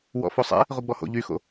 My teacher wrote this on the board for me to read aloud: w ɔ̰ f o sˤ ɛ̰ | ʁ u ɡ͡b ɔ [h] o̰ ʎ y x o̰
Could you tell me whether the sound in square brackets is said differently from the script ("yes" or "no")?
no